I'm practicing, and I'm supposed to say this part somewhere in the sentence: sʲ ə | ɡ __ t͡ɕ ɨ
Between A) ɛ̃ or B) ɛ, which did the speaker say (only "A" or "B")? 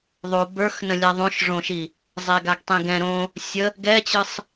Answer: B